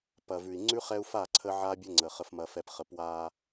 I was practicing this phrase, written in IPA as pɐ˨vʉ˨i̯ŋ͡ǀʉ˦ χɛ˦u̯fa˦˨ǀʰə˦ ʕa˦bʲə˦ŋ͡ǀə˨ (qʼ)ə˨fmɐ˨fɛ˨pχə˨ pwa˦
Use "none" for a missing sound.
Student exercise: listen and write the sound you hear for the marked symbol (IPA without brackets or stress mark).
χ